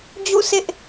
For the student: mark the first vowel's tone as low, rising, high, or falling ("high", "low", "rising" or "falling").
falling